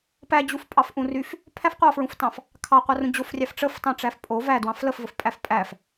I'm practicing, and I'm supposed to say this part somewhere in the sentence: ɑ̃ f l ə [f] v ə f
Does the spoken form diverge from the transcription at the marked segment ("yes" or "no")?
no